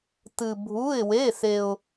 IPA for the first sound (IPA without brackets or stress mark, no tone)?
t